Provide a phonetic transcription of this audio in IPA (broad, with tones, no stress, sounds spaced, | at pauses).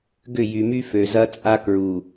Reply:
ɡ ʏ˦˨ j y˨ m y˦ f ø˨ z ɐ˦ t͡sʼ a˦ k ɹ u˨